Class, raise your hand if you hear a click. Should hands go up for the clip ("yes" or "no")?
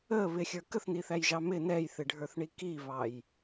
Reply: no